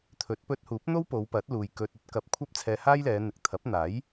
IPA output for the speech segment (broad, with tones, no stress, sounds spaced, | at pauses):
t̪ʰ ɵ˨˥ t̚ p ɵ˧ t̚ h uː˨˥ p̚ n̪ o˥ w p o˨˧ w p ɐ˨˥ t̚ l uː˨ j k ɵ˨ t̚ ɵ˨˥ t̚ k ɐ˨˥ p̚ kʷʰ ɐ˥ p̚ t͡sʰ ɛː˧ h aː˥ j l ɛː˨˧ n̪ ɪ˨ k̚ t̪ʰ ɐ˨˥ p̚ n̪ aː˨˥ j